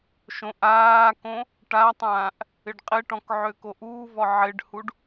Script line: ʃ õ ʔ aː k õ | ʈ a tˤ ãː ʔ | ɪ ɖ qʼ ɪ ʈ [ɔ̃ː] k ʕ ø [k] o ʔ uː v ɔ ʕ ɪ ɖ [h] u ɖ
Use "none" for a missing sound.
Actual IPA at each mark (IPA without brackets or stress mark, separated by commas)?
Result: ɔ̃, k, h